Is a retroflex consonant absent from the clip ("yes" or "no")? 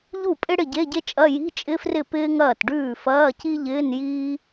no